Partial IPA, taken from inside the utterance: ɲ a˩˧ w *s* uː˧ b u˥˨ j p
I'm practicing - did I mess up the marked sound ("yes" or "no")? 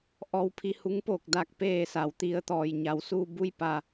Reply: no